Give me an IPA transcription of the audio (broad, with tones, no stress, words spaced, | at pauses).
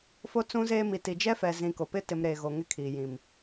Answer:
fo˦t͡sũ˦zeː˦mi˨ ti˨ d͡ʒɛ˦fɛ˨zĩ˨ ko˨ pɪ˦ tɪ˨m ɾeː˨ɣo˨ ŋɪ˦kʰiː˨jĩ˨m